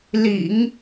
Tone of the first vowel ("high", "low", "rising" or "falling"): low